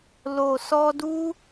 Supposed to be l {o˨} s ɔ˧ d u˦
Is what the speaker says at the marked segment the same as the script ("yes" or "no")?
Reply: yes